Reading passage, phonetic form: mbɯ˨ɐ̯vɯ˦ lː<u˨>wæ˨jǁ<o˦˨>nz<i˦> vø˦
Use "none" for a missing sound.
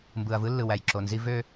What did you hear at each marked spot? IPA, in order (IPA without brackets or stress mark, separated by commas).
ɯ˨, o˨, i˦